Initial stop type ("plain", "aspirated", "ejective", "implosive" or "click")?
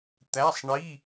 plain